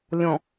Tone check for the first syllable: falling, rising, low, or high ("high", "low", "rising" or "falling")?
low